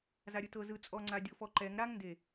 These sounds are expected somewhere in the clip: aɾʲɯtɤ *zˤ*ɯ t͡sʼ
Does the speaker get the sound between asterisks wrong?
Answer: yes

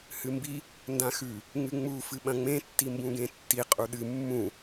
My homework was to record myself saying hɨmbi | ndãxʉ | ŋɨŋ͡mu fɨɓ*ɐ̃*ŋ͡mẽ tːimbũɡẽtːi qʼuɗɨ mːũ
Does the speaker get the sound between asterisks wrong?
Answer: no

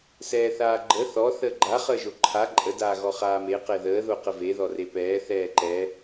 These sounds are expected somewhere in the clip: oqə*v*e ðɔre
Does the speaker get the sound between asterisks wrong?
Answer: no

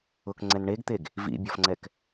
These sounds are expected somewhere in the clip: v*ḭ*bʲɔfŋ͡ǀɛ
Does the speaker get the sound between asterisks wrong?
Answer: no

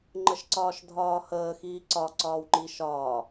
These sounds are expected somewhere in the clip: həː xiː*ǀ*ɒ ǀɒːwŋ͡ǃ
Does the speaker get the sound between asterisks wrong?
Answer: no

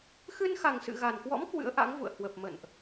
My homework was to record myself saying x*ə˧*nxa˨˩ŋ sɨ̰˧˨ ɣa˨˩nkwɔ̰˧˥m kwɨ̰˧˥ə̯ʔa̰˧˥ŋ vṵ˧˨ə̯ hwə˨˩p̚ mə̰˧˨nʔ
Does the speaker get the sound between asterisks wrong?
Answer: yes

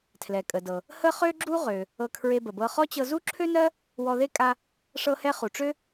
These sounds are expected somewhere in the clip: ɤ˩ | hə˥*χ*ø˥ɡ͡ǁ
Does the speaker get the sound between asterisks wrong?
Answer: no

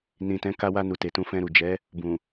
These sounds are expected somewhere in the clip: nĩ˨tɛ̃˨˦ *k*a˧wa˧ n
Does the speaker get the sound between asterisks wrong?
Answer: no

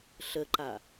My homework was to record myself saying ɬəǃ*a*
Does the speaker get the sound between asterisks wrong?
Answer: no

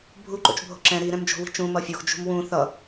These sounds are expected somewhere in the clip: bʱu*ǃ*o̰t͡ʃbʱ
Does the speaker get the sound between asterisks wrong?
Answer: no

